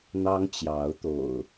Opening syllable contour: high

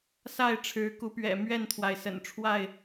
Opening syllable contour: falling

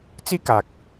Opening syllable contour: high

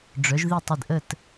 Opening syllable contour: rising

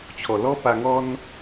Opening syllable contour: low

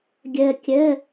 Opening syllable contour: low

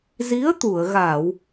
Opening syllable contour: rising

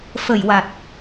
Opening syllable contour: low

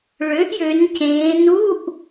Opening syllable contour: rising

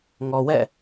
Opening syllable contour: low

